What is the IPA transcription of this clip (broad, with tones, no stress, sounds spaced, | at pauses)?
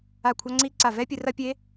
a˧˩ kʷʰ a˧ ŋ͡ǀ i˧ ǀ a˧˩ v ɛ˦˥ pʲ ɨ˧ r ɐ˦˥ pʲ e˦˥